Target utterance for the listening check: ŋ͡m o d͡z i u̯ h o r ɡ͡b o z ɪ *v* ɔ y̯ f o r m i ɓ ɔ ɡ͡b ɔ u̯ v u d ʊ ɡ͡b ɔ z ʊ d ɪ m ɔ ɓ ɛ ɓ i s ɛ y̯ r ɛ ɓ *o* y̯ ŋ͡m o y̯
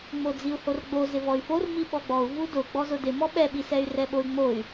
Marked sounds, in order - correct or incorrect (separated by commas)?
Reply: correct, correct